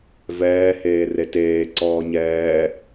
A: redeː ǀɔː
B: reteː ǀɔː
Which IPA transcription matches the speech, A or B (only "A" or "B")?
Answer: B